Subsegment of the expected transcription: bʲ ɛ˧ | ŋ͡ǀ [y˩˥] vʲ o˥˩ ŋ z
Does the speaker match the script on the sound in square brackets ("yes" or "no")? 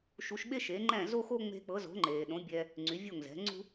yes